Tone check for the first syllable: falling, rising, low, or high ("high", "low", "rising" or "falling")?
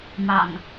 low